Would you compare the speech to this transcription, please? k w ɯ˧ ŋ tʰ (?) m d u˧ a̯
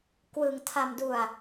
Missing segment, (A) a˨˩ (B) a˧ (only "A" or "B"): B